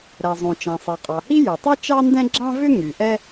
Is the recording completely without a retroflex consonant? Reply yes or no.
yes